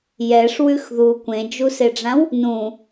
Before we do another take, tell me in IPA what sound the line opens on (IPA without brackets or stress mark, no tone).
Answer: j